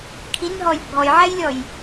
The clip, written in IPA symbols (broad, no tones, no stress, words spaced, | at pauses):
kʰinɦɔj bʱɔjʕɛjlʲɔj